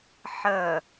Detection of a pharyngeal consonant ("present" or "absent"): present